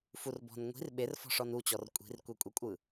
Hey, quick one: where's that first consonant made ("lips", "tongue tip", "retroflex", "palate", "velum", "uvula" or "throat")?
lips